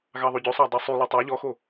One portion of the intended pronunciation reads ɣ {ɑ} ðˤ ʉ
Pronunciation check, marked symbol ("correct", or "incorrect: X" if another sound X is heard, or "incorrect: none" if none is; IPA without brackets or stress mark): correct